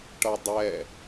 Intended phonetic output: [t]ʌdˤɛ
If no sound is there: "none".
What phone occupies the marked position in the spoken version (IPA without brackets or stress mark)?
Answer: ʈ